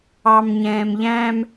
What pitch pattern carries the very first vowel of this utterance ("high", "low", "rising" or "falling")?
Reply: low